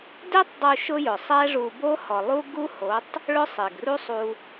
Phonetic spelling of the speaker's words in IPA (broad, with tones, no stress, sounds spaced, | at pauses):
d e˦ tˤ dˤ u˧ ʃ ʊ˦ j ʊ˨ sˤ ɛ˦ ʐ u˧ b o˦ h ɔ˨ lˠ u˦ ɡ u˦ h o˨˦ tˤ | ɭ ʊ˦ sˤ e˨ ɡ r u˦ sˤ u˧